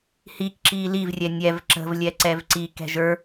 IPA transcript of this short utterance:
hik ǁiːlivrʲɛ nʲɛv ǁə̤vlʲɛ ǀɛvǀi kɛ̤ʒə˞

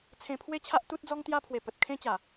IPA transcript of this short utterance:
t͡sʰẽ˧pʰwe˦t͡ɕʰa˦ʔ t̪u˦t̚d͡zɔ˦ŋt̪ja˦ pʰwe˨˩ pə˨t̚kʰẽ˦t͡ɕa˨˩

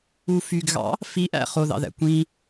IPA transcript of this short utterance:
ufyɡɣɑ̰ | fiʔæ̰ χoðɑ̰ðæ̰ kʷĩ

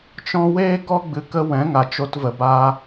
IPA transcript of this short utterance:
t͡ʃɔ̃˦ weː˦ɡɔ˦ ɡ͡bɨ˧kə˦ wɛ̃˨˦ŋa˨ t͡ʃo˧tvə˨baː˧

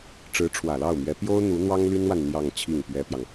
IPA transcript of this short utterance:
ʈ͡ʂɻ̩˧˥ʈ͡ʂʰwä˨˩lɑ˥˩ʊ̯mɥɛ˧˥ pjo˥ʊ̯ n̪u˧˥n̪wɑ˥ŋly˥nwa˨n n̪jɑ˥˧ŋt͡ɕʰi˥˩ŋpɥɛ˥pjɑ˨ŋ

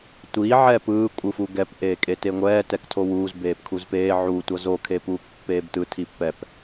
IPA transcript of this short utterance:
tʷi ʕɛpɯː kʷʼɯfuɡɛp ʔeːkʼeteŋʷɛː tɛktʰowuːz beːpkʰuzpeː ʕu tʷʌzo kʰepuːkpːeːbtɯ tʰipːɛp

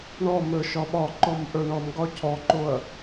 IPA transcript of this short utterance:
ɳɔmə˞ ʃɒɓɒǃɔm ʔə˞ɳɔmɡɒ cʰɔǃoɐ̯

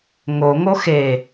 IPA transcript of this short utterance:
ŋoŋo xe

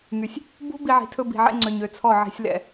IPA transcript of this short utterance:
ŋy˨sʲ | bṳ˦ bi˧ʕi̤˨ tʰɵ˦bi̤˨ʕɛ̰˦ŋ͡ǀø˨ɲ ø˨t͡sʰɔ˦˨ ʕi̤˧sʲlɛ̰˦˨

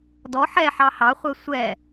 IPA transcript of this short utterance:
dɔ ħɛħɑ hɑχʷɛ sʷɛ

